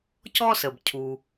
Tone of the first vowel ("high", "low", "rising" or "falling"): high